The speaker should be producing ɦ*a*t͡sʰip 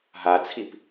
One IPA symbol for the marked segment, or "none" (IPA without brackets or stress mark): a